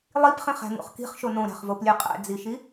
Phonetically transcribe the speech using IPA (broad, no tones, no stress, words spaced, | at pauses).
lˠipχĩχæ̤ŋṵχ ki̤χʃo nõɾæ̤χvoplʲe qʼæ̰d͡ziʃi